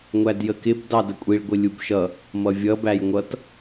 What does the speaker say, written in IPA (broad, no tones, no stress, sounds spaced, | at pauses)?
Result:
ŋʷ æ d j ə k ɪ b d ɑ d ə kʷʼ i ɭ ɡʷ ɪ lʲ u b ʃ ʌ | m ʌ vʲ ʌ b æ j ŋʷ ʌ t